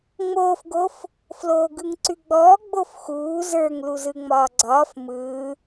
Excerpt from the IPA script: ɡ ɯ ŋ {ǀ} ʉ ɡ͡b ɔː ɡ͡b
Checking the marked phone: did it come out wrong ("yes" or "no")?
no